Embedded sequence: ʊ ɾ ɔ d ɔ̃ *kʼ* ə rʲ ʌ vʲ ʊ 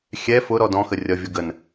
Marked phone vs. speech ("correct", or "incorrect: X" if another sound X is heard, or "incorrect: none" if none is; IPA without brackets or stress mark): incorrect: x